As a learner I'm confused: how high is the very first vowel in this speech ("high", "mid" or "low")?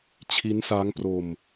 high